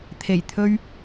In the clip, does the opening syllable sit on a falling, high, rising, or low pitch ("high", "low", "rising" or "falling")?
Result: low